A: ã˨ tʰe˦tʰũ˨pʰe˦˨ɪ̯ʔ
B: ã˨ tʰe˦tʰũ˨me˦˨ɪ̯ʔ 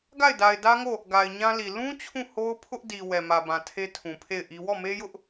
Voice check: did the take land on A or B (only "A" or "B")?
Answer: A